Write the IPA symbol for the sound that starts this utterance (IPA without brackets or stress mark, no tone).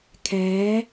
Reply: kʰ